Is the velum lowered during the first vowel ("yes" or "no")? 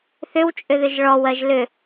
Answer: no